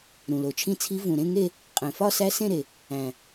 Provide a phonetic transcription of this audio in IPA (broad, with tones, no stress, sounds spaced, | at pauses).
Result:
ɾ ũ˨˩ l o˨˩ t͡ʃʰ ĩ˥˧ t͡sʰ i˦˥ v ũ˨˩ ɾ ẽ˥˧ ŋ e˥˧ | qʼ ẽ˨˩ f ɒ˥˧ s æ˦˥ s ẽ˥˧ ɾ e˨˩ | æ̃˨˩